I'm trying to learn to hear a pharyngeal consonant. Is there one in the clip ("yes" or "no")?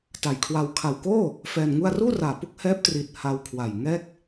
no